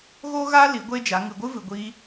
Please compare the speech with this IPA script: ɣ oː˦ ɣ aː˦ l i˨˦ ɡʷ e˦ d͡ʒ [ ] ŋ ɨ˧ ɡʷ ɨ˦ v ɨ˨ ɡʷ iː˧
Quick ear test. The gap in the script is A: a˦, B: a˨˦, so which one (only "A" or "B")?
B